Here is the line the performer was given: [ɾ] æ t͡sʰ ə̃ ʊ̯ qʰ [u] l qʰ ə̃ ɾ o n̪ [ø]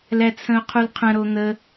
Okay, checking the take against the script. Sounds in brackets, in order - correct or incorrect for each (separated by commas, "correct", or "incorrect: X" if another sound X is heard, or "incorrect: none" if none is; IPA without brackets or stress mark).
incorrect: l, correct, incorrect: ə